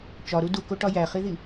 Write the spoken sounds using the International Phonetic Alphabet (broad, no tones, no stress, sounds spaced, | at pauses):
t͡ʃ ɒ ɾ u d u k o ʈ ɒ j æ χ i ð i